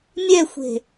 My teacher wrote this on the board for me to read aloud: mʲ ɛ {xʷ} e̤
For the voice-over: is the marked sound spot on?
yes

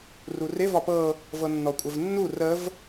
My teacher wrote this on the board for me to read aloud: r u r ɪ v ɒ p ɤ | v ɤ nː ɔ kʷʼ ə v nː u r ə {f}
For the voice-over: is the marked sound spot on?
no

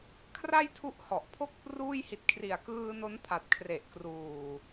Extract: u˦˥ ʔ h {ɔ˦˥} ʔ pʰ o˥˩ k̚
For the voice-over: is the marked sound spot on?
no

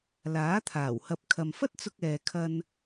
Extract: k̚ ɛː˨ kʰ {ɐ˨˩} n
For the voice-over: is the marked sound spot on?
no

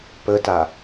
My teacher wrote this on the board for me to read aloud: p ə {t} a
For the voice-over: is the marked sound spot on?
yes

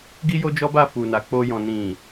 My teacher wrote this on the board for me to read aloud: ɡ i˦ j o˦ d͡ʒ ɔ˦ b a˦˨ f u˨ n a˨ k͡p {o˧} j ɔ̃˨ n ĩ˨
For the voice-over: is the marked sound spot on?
yes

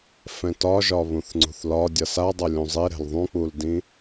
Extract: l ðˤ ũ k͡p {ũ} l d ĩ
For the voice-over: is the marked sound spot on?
no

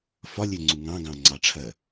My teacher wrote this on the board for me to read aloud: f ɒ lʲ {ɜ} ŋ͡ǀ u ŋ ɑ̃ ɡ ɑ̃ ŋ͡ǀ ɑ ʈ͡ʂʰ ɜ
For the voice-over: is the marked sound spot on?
no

